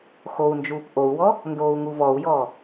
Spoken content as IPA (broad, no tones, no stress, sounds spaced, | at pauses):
x o u̯ n d͡ʒ uː p ʔ o u̯ w ɔ | n d oː u̯ ŋ u v ɔ u̯ j ɔː